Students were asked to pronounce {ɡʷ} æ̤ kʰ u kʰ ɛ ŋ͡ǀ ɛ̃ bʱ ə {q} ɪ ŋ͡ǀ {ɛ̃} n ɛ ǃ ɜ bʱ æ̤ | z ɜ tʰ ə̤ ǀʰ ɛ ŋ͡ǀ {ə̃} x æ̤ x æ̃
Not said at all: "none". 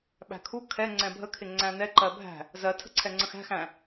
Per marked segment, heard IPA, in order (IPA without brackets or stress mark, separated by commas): ɓ, kʰ, æ̃, ə̃